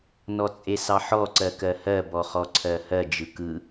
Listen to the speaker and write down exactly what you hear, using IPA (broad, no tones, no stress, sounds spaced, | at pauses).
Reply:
n ɔ t͡sʼ e s ɑ ħ ɔ ǀ ɜ k ɜ h ɜ b ɔ χ ɔ ǀʰ ɜ h ɜ d͡ʒ ɯ k ɯ